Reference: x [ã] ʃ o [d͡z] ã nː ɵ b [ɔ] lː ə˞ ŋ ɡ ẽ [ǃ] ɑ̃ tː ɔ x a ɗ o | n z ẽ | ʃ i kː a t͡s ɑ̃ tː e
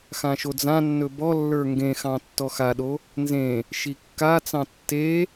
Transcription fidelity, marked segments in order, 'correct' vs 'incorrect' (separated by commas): correct, correct, correct, incorrect